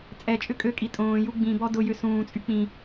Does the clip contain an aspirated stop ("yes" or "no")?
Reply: no